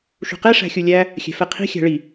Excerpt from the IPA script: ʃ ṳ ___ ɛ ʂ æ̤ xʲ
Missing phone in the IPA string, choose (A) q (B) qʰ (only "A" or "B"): A